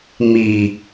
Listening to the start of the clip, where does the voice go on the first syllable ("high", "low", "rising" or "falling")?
low